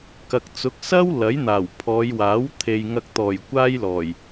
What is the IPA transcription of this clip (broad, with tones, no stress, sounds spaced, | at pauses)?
k ɐ˨ k̚ t͡s ʊ˨˥ k̚ s ɐ˥ w l ɐ˨˥ j n̪ aː˨˩ w pʰ ɔː˨˧ j w aː˨˥ w t̪ʰ e˨ j ŋ ɐ˧ k̚ t̪ ɔː˨˩ j kʷ aː˥ j l ɔː˨˩ j